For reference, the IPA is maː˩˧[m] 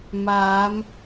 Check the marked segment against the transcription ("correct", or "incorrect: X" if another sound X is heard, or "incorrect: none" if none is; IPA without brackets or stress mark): correct